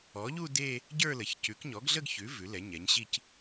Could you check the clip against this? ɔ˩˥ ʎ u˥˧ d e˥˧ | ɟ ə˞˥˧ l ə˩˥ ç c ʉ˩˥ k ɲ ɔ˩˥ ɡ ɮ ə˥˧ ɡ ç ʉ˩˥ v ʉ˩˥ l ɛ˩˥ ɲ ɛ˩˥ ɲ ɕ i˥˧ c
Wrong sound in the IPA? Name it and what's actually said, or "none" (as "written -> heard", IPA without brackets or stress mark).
none